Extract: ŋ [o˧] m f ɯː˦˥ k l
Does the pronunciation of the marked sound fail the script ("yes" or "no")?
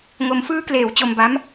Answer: no